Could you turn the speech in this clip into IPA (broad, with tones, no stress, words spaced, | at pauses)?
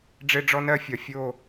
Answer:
ɖ͡ʐe˦ɖ͡ʐɔ˦nɜ˦fʲɒ˨ fʲo˦˨